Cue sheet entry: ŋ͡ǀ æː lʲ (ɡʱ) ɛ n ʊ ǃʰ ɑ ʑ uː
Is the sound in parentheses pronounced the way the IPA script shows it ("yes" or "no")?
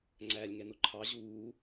no